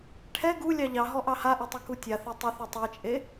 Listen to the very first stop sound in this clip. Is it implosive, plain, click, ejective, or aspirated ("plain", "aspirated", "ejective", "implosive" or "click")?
aspirated